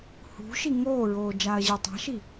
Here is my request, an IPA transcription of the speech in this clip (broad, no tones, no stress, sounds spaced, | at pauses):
h ṳ ʃ i ŋ oː ɹ oː d͡ʒ aː ɐ̯ ʑ i ɐ̯ tˤ a̤ ʃ i